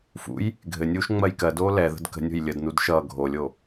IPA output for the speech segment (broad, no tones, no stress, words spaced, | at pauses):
fṵj | ɡʱɘnʲuːʃ ŋ͡mɜjkɜdoː lɛðə̤d kə̤nʲo̤j lʲədnud ʃʌː ɡʱolʲo